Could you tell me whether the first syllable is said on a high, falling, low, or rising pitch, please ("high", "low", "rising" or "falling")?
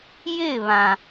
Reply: falling